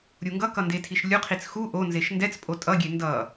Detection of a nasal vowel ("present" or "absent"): absent